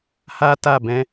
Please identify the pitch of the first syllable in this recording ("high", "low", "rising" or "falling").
high